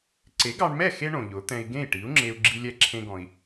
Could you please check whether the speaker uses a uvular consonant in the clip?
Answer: no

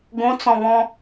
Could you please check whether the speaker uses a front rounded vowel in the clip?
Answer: no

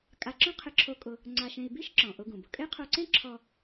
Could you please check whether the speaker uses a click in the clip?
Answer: yes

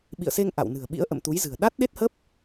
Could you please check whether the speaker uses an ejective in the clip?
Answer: no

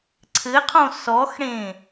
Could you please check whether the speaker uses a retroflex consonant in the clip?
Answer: yes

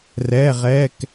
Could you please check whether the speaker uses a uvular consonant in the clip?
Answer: yes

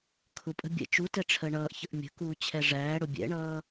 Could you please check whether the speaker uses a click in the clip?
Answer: no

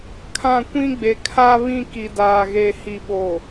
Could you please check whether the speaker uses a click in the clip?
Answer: no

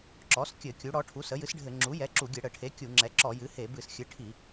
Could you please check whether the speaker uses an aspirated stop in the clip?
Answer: yes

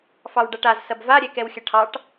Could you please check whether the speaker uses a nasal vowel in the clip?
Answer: no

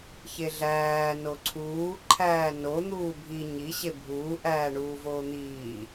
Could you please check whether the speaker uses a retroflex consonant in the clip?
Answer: yes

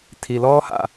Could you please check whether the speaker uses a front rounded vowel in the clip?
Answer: no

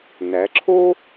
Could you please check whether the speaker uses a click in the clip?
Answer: yes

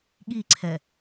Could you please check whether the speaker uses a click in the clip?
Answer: yes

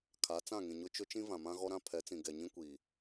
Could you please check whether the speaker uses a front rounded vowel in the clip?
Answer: no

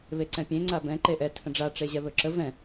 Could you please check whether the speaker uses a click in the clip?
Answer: yes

